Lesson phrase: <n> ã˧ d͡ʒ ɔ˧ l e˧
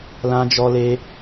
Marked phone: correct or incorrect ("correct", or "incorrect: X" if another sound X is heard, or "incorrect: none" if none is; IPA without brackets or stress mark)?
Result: incorrect: l